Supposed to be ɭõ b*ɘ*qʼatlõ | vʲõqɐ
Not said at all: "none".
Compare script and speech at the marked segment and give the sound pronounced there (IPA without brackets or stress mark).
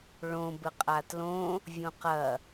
ɘ